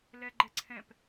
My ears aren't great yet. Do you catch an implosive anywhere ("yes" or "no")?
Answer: no